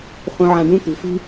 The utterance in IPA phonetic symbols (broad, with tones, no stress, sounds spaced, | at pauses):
χ ũ˧ ʕ ã˧ ɖ ũ˥ t̪ ṳ˩˥ f i̤˥